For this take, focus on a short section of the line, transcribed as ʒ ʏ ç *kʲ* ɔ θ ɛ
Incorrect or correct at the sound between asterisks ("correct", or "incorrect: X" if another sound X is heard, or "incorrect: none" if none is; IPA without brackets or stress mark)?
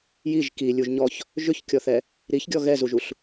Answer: correct